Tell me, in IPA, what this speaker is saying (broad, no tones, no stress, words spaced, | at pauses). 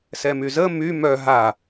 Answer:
sɛmyzə my mœ ɦa